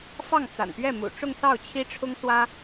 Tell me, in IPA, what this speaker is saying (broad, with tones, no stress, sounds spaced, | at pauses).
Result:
f ɑ˥˩ ŋ t͡s a̰˨˩ n p ɥ ɛ˥˩ m ṵ˨˩ ʈ͡ʂ ʊ˥˧ ŋ s ɑ˥˩ ʊ̯ t͡ɕʰ i˥ ʈ͡ʂʰ ʊ˥ ŋ s w ä˥